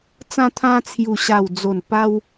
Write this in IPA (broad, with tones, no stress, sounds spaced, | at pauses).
t͡s ã˧ t̪ʰ ã˧ t͡sʰ j u˨˩ ɕ a˨˩ w d͡z o˨˩ n p a˧ w